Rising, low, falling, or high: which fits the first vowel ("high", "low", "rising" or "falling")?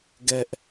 high